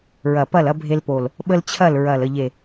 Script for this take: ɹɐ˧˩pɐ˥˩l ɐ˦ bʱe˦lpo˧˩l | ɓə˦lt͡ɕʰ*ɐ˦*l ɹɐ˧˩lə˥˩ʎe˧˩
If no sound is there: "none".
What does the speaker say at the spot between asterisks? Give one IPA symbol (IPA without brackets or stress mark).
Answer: ɐ˥˩